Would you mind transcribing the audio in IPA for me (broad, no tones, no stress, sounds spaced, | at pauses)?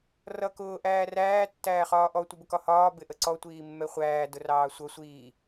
r ʌ k ʊː ʔ æː r æː tː æː χ ɒː ʔ ɔ tʷ ɪ b ʊ k ɒ h ɒː b ɪ ʔ ə ǀ ɔ tʷ iː mː ɛ χʷ æː d ʊ r ɑː sʷ ʌ sʷ iː